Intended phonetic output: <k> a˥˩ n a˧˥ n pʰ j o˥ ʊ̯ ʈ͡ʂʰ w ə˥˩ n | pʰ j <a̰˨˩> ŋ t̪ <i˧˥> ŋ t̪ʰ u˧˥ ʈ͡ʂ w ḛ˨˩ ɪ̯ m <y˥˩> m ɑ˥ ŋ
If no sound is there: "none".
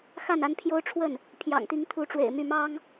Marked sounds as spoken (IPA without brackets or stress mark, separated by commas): x, ɑ̰˨˩, i˧˥, y˥˩